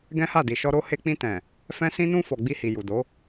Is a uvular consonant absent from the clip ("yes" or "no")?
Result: yes